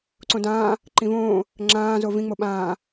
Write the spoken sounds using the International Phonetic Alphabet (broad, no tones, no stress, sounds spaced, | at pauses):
ǀ õ d ãː | ǃ ĩ v õː | ŋ͡ǁ ãː z o v ĩ ŋ͡m o ɓ ãː